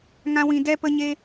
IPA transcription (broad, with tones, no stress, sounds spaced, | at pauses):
ŋ ã˦ w ĩ˧ d ɛ˦ p ə˦ ɲ e˦